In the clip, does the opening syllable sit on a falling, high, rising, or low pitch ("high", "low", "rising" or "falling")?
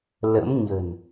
rising